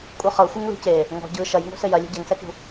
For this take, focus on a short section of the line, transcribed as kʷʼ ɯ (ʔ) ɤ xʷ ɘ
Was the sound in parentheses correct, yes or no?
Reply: no